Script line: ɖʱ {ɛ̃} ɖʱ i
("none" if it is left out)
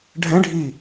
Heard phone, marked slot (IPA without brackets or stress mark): ɛ̃